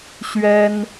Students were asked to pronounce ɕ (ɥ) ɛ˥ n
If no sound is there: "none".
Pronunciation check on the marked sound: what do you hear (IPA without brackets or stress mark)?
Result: ɥ